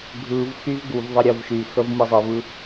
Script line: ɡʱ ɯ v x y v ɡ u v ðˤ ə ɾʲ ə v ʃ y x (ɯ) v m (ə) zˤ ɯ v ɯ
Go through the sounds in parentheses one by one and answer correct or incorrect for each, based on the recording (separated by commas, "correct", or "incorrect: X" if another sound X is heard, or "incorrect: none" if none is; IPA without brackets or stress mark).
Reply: incorrect: ə, incorrect: ɯ